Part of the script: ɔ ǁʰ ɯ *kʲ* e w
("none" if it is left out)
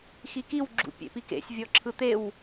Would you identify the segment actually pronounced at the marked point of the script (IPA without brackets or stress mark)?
t̪